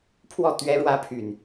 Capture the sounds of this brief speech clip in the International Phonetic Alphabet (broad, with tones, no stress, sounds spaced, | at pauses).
pʰ w ɔ˥˨ t̪ ɥ ɛ˦ ɻ w ä˦ pʰ y˨ n